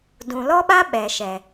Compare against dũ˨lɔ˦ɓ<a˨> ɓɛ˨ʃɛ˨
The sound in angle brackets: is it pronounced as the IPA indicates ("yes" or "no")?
no